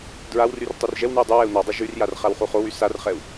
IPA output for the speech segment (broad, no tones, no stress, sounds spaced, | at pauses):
d ɹ a w r y r tˤ u r ʒ ɛ w n y u̯ dˤ y w ɛ u̯ n ɔ dˤ o ʒ y r j a r χ a w χ u χ o w y s a r χ ɛ u̯